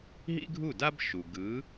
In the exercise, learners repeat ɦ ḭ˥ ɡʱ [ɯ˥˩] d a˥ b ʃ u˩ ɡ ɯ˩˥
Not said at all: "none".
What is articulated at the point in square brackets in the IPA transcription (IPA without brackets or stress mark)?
u˥˩